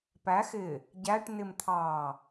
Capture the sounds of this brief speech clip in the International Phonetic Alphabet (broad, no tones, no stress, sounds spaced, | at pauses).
p æ x ɪ | ɟ æ ʈ n ɪ m t̪ʰ ɑ